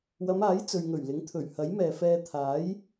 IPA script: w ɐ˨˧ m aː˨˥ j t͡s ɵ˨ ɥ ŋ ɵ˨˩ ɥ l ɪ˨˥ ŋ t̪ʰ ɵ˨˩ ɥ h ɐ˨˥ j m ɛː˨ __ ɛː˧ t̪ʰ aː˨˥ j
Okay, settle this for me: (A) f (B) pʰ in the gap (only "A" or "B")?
A